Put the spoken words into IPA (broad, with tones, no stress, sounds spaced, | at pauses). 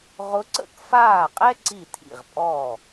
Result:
ʁ ʊ˧˥ ǀ ə̰˥˩ k f aː˥˩ qʼ ɛ˥ ǀ i˥˩ tʰ ḭ˥˩ ʁ pʼ ɔ˥˩